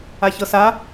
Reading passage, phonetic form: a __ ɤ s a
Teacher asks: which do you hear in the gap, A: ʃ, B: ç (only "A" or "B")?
B